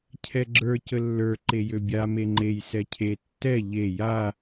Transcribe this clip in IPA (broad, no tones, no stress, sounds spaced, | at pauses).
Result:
cʰ ɛ ɡ͡ǁ ə˞ c ə lː ə˞ ǃ e j ø bʲ a m e ŋ͡ǃ e j s ɛ cʰ e tː ɛ ʎ e j a